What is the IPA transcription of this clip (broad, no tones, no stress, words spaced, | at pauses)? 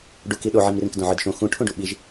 ɖuki ɗoʕimrĩk dõʕɯdʃõ xũ ʈʰũɖuɓiʒ